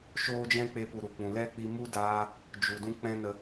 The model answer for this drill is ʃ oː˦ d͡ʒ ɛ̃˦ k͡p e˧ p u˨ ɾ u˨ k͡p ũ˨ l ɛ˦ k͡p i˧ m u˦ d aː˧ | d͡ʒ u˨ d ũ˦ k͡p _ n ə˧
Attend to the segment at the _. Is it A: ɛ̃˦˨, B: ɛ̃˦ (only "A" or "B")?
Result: B